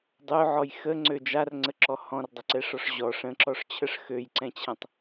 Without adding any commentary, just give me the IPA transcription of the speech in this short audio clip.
dˤ ø ʕ ɔ j x ə ŋ͡ǀ ø d͡ʒ a r ŋ͡ǀ ə ǁ ɔ h ɔ̃ r dˤ ə ǀ ɛ ʂ ɔ ʂ ʑ ɔ ʂ ə̃ ǁ ɔ ʂ t͡ɕʰ ə ʂ x ø j ǀ ɛ̃ t͡ɕʰ ɛ̃ tˤ

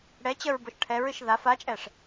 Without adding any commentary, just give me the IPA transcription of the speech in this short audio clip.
ɽ ɛ t͡ɕ ə ɹ b o ʃ ʈʰ ɛ ɹ ɨ ʃ ð a f a t͡ʃʼ ɛ ʂ

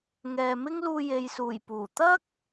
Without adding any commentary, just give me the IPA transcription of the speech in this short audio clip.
ŋ ɛː˨ m ɪ˥ ŋ l uː˧ j e˨ j s uː˨˩ j p uː˨˩ t̪ ɐ˥ k̚

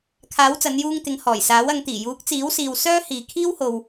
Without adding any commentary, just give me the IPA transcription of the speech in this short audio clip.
kʰ aː˨˥ w t͡s ɐ˨˧ n j uː˧ ŋ t̪ ɪ˨˧ ŋ h ɔː˨˩ j s aː˨˥ w ɐ˨˧ ŋ t̪ iː˨˩ j uː˨˥ k̚ t͡s iː˨˥ w s iː˨ w s œː˥ h iː˨ kʰ iː˥ w h o˧ w

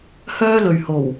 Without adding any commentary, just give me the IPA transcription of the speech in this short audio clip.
h œː˥ l ɵ˨ ɥ h o˨˩ w

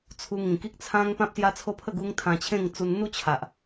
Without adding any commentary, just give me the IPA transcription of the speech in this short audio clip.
t͡sʰ u˧ ŋ ĩ˨˩ k i˦ k̚ t͡sʰ ã˦ ŋ p ã˦ p̚ s j a˦ t͡sʰ o˦ pʰ ə˥˧ ɡ u˦ ŋ t̪ʰ ã˧ t͡ɕʰ ẽ˥˧ ŋ t͡s u˧ n n̪ u˥˧ t͡ɕʰ a˨ ʔ

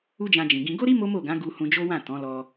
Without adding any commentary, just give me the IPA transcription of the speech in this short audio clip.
u˦ d͡ʒ ã˧ d͡ʒ ĩ˨ ɡ ĩ˧ ɡ o˦ ɾ i˦ m o˦ m o˦˨ ɡ ã˨˦ ɡ u˧ h ũ˧ d͡ʒ o˦ w ã˦˨ t ɔ̃˨˦ l ɔ˧

